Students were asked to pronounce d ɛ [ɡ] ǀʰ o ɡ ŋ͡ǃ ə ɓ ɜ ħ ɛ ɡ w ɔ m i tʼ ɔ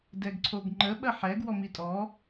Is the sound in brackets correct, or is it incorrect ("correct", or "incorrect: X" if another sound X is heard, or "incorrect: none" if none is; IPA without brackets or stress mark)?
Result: correct